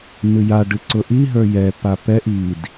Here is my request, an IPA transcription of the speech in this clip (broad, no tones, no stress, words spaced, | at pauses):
nɨja ɖɨǀʊʔi ɦə˞jɛ papɛʔ id